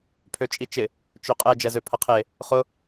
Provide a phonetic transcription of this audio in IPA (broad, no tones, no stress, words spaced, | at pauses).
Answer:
pʰøt͡ʃʼit͡ʃɪ | t͡ʃøqʼɛ d͡ʒɛzøpʰɐqʰe | χʊ